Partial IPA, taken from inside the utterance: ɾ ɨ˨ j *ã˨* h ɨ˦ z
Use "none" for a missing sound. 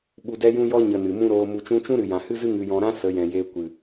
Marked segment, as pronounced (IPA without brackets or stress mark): ã˨